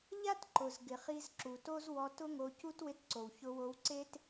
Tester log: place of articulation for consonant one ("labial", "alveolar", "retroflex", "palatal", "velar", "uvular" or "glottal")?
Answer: palatal